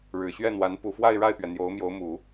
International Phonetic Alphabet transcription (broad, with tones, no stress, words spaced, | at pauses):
ɻɻ̩˨˩ɕɥɛ˥˩n̪wa˧˥n pu˨˩fwa˥˧ɪ̯ɻa˥˩ɪ̯pɥɛ˩ n̪jo˧˥ʊ̯mjo˧˥ʊ̯ mu˨˩˦